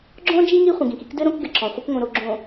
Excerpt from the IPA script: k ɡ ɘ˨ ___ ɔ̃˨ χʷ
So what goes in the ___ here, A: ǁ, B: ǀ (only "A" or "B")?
A